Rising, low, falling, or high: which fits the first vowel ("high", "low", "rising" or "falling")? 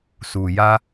low